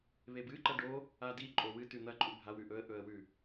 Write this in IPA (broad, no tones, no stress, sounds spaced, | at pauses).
β e b ɨ ǃ ɐ ɖ o | a d i ǃʼ o w ɨ t ʉ n̪ ɐ ǃʼ u bʱ a w ʉ ʔ ɵ ə̯ ʔ ɵ ə̯ w ʉ